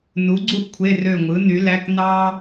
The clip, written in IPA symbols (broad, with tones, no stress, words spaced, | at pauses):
nu˩˥ɡ͡ǀu˥ʔ kʷʰe˧˥˧rø˦˨ŋʷɯ˩˥ny˩˥ læ˧˥˧k nɑ˥